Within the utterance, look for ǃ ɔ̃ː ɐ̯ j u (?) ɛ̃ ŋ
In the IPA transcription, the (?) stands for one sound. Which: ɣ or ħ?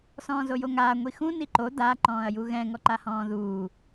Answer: ɣ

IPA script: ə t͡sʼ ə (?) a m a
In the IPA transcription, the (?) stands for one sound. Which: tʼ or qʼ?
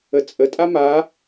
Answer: tʼ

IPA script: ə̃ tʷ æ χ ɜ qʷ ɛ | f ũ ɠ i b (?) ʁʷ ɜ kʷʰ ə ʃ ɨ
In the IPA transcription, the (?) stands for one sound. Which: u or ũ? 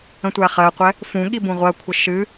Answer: ũ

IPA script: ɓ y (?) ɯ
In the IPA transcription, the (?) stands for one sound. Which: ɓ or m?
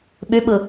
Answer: ɓ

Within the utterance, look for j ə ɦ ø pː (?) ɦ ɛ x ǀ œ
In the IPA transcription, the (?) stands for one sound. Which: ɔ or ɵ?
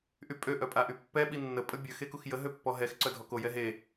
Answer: ɔ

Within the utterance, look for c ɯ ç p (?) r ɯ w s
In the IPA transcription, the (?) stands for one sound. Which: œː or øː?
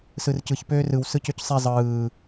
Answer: øː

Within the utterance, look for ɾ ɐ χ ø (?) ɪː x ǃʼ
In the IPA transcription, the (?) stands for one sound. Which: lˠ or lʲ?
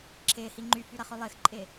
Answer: lˠ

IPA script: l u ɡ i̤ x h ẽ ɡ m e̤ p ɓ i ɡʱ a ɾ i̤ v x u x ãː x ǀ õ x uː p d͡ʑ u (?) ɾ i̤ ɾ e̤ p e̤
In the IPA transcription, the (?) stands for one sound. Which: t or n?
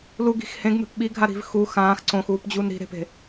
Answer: n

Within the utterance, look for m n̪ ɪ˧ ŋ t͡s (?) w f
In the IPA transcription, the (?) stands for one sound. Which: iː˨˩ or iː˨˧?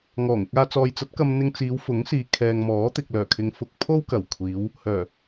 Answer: iː˨˧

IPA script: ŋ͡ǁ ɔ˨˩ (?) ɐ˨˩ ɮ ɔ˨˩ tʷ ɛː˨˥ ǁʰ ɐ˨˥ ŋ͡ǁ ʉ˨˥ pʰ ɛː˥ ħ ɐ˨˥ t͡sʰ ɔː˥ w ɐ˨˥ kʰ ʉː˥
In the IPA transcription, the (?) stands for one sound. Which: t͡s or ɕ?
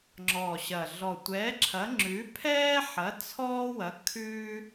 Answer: ɕ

